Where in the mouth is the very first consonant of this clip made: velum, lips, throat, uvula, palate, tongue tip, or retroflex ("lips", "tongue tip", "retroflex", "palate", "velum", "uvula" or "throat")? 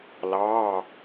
tongue tip